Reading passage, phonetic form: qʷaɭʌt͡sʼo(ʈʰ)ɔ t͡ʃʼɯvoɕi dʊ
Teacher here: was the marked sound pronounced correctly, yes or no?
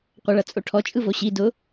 yes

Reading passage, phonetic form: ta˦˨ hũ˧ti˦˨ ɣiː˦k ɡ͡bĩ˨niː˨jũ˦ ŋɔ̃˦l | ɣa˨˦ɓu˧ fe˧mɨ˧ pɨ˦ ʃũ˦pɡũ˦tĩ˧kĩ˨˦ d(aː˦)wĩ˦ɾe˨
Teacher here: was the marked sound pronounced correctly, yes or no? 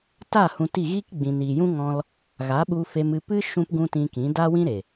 no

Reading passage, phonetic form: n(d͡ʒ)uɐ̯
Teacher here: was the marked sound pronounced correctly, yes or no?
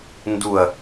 no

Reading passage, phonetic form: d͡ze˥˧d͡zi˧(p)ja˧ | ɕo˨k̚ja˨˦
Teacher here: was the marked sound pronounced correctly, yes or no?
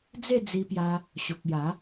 yes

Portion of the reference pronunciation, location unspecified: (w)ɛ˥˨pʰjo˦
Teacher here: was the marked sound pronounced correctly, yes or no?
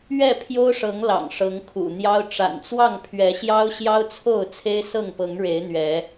no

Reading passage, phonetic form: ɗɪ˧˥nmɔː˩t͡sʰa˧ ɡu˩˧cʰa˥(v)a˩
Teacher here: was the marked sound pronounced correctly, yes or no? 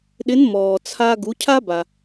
no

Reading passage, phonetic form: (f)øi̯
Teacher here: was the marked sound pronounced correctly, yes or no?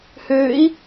no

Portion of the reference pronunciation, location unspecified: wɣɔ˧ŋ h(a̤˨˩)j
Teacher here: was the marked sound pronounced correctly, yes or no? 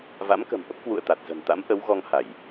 no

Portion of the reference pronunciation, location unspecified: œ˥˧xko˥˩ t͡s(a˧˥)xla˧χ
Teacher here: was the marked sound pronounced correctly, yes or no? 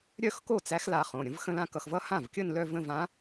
no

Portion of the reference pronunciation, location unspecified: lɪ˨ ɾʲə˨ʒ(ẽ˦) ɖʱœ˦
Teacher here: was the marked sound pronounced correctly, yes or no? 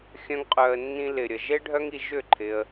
no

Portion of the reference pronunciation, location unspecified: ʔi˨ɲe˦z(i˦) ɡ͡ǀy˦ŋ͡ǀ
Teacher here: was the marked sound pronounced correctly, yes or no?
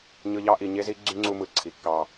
yes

